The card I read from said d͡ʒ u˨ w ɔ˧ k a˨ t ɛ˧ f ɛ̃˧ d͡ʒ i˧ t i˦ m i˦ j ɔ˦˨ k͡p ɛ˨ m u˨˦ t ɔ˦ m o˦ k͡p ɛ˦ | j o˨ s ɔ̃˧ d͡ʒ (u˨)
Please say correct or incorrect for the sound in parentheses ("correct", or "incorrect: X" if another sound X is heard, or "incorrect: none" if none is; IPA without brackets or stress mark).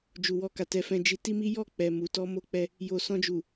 correct